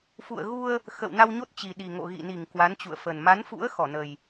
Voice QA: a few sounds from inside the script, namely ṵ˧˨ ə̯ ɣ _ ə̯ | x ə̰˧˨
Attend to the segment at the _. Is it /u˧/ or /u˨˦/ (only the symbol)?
u˧